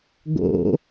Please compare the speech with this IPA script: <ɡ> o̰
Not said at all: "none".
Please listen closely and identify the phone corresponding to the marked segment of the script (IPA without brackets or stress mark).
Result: ɡ